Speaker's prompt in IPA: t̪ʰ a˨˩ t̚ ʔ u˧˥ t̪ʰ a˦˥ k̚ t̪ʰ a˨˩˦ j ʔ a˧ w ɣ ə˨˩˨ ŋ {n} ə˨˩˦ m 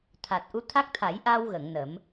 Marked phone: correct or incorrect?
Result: correct